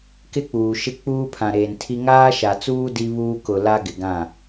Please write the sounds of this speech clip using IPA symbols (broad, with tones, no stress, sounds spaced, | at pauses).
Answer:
k ɪ˦ k͡p uː˨ ʃ ɪ˦ k͡p uː˦ pʰ ã˨ ɾ eː˨ n tʰ i˦ ŋ aː˦ ʃ a˨ t͡s uː˦ d i˦ β uː˦ k ʊ˨ l a˦ ɡ ɪ˨ ɡ ã˦˨